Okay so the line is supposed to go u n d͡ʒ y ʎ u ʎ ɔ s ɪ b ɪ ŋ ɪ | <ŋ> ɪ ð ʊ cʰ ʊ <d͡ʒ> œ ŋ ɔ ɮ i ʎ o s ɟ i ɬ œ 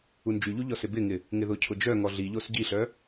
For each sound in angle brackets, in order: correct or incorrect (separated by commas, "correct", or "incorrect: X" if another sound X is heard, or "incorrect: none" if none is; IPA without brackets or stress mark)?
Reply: correct, correct